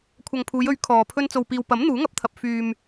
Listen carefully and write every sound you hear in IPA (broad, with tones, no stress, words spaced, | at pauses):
kʷʰɐ˨ŋpʰuː˨˧jɵ˨˥ɥ kʰɔː˨pʰɵ˧n t͡so˨wpiː˨wpɐ˨˥m n̪uː˨˥ŋɐ˨˥p̚t̪ʰɐ˨p̚ fyː˨m